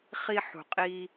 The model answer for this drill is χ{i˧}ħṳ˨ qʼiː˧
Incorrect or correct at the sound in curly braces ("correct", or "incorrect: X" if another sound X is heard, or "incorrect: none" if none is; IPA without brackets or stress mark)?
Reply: correct